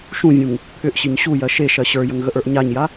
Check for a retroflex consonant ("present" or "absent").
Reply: absent